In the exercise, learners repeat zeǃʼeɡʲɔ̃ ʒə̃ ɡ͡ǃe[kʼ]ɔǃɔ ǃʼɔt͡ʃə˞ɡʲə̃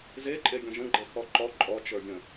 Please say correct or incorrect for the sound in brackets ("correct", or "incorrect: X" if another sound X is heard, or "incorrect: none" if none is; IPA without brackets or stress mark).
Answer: incorrect: x